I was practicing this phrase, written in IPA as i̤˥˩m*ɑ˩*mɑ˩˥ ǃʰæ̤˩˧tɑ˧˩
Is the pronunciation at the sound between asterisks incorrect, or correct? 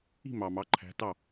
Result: correct